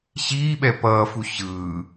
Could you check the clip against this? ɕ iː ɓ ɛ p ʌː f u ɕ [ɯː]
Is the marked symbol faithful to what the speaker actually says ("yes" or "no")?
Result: yes